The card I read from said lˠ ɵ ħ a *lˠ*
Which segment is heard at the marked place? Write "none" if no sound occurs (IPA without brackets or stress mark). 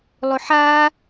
none